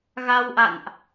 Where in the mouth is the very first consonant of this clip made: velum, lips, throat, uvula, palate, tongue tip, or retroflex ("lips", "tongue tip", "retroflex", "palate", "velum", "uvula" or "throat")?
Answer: velum